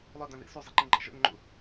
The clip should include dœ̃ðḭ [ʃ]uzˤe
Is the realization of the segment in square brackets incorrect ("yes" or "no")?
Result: yes